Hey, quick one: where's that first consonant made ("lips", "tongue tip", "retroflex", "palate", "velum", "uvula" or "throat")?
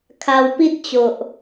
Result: velum